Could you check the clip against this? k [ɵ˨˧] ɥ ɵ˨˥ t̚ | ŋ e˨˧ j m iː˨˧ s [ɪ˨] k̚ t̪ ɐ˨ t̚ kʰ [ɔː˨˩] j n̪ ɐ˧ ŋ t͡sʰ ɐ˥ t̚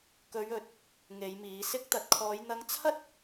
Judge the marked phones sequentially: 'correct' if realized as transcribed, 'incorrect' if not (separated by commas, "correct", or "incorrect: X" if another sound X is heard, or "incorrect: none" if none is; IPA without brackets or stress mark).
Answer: correct, incorrect: ɪ˧, incorrect: ɔː˨˧